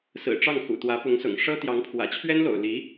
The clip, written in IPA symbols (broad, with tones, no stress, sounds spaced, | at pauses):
s ɹ̩˨˩ ʈ͡ʂ ɑ˥˩ ŋ x ṵ˨˩ t̪ w ä˧˥ p ʊ˧˥ ŋ s ʊ̰˨˩ ŋ ʂ ɤ˥ t̪ j ɑ˧˥ ŋ pʰ w ä̰˨˩ t͡ɕʰ ɥ ɛ˥ n l o̰˨˩ ʊ̯ l i˧˥